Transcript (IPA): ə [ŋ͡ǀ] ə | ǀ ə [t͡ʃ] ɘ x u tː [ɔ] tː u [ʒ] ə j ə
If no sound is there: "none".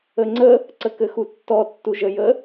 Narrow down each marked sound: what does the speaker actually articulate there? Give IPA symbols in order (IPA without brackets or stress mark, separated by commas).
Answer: ŋ͡ǀ, k, ɔ, ʒ